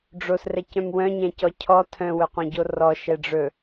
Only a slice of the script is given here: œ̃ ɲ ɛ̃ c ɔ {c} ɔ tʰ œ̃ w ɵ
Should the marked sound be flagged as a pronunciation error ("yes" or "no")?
yes